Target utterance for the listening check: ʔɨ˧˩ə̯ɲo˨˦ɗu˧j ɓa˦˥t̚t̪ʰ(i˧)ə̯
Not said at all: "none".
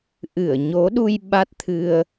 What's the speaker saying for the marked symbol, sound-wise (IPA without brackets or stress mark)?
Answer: ɨ˧